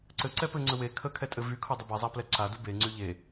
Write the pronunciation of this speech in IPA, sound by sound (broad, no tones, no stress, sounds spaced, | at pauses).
ǀ ɘ ǀ ɛ p ɘ ŋ͡ǀ ə w e kʰ ə kʰ ɛ tʼ ɘ v y kʰ ʊ dˤ ə b e zˤ a p l ɛ ǀ a d u b e ŋ͡ǀ y ʎ e